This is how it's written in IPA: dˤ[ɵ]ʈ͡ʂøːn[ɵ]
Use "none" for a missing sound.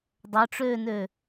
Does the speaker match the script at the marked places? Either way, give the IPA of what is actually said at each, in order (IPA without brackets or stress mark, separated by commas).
ɵ, ø